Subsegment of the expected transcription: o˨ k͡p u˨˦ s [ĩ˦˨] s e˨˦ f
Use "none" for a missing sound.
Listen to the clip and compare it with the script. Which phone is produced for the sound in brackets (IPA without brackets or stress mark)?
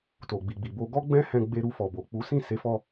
ĩ˦˨